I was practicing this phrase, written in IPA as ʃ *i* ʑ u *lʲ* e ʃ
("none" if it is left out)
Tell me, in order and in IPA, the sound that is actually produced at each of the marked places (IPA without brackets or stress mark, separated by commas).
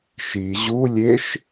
i, lʲ